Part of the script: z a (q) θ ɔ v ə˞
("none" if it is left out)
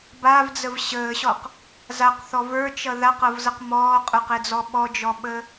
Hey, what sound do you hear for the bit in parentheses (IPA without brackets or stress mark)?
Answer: q